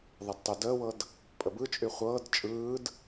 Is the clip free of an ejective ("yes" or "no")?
no